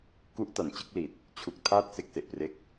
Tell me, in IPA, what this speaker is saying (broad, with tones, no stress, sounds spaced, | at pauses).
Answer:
k u˦˥ ʔ t a˨˩ n t͡ɕ ɯ˥˩ k̚ l i˨˩ t̚ | t͡ɕʰ u˨˩ k̚ tʰ aː˥˩ t̚ s e˥˩ k̚ s e˨˩ ʔ p r e˦˥ k̚